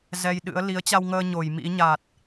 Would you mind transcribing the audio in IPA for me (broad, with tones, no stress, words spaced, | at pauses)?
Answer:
zɛ˧jɗɨ̰˧˥ə̯ li˨˦ə̯t͡ɕa˧wŋəː˧ ɲo˧˩j mḭ˧˥ ɲa˨˩t̚